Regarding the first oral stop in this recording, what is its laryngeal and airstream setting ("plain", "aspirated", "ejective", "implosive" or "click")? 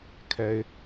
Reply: aspirated